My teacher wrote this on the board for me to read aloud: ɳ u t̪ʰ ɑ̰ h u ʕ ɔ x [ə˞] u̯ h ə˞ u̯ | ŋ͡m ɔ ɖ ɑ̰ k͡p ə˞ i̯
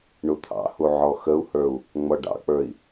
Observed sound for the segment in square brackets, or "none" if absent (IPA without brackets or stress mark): ə